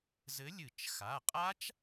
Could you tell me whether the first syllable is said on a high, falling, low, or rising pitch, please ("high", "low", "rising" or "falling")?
rising